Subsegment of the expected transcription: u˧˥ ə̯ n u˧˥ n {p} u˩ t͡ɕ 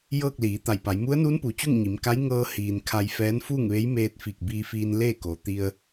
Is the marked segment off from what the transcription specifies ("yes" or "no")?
no